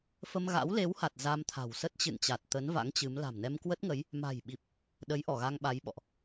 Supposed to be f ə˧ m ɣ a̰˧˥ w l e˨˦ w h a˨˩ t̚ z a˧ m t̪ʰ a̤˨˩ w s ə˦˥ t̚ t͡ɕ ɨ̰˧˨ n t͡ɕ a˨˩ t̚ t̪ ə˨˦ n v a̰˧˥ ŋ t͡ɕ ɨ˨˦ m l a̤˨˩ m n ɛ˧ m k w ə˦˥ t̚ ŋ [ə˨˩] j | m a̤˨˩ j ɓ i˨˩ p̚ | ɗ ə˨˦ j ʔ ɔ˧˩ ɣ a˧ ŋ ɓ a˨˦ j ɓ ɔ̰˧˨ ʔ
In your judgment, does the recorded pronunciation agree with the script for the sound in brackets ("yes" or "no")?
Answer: no